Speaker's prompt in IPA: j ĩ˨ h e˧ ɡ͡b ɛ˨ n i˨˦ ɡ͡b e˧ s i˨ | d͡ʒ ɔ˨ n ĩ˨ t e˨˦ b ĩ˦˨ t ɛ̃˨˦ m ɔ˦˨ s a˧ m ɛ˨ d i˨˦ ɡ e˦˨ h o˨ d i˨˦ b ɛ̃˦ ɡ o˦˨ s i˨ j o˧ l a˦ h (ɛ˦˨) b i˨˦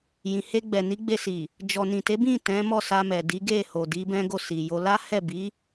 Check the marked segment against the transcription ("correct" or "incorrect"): correct